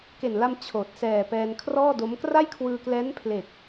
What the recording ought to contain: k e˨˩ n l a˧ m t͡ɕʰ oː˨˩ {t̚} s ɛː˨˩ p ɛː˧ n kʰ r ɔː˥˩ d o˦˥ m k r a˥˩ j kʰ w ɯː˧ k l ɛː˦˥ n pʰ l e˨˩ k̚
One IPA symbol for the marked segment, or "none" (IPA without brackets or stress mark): t̚